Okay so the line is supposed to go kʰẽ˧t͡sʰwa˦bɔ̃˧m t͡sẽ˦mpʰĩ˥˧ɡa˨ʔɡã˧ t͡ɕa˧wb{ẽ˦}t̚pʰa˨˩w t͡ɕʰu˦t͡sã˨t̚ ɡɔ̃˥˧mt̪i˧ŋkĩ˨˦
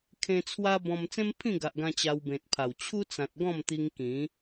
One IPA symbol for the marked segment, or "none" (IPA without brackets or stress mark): ẽ˨